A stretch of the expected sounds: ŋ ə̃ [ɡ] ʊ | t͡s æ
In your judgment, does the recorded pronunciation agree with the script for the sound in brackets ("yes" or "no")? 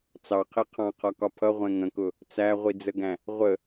no